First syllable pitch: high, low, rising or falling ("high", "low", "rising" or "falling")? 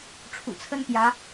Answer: low